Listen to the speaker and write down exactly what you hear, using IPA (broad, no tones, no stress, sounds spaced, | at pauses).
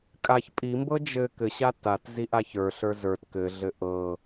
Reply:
kʼ a ç pʼ i m b ɤ d͡ʒ ɘ k ɘ ɕ a t a t z i ʔ a ç ə˞ ɬ ə˞ z ə˞ t k ɘ ɮ ɘ ʔ ɤ